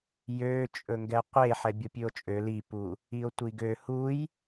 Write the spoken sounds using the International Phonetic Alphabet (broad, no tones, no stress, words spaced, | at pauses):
jø t͡ʃʼɵŋɡɛqʷe ħɛbʲopʲʉo̯t͡ʃʼø lipu | io̯tʷiɡø huj